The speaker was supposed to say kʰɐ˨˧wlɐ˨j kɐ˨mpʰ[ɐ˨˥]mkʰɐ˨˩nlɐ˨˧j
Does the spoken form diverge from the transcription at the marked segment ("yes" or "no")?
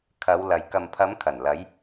yes